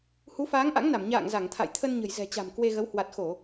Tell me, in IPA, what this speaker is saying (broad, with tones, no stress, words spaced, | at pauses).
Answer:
hu˨˦faː˨˦ŋʔa̰˧˥ŋna˧˩m ɲa̰ː˧˨ŋza˧˩ŋt̪ʰa̰˧˨jt̪ʰə˧n ɲə̤˨˩jzɛ̤˨˩t͡ɕa̤˨˩m kwe˧ɣə˨˦w hwa˨˩t̚xo˧˩˨